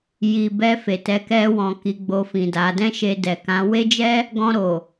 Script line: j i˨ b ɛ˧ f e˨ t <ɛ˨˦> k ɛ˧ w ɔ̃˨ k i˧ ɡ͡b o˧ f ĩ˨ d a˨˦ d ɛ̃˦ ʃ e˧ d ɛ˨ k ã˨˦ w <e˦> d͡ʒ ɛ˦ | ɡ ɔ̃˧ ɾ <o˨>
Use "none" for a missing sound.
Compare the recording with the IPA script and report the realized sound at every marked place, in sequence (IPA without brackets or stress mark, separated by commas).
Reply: ɛ˨˦, e˦, o˨